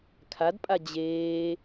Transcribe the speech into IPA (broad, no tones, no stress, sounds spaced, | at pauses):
kʰ a d pʼ a d͡ʑ eː